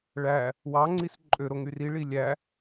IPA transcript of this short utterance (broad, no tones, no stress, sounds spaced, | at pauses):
ɭ æ | w ɑ ŋ͡ǀ i s ǃʼ ø ɾ o ŋ y r i ɭ i lʲ æ